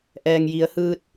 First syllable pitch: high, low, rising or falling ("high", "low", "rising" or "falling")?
low